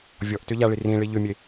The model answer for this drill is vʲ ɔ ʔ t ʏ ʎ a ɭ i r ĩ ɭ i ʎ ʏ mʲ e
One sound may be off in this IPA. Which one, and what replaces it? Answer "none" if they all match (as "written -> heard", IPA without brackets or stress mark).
none